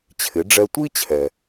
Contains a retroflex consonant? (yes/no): yes